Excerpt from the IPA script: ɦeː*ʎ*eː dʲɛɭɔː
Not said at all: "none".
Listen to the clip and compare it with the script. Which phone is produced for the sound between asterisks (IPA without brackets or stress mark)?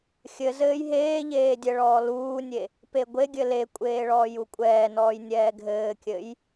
ʎ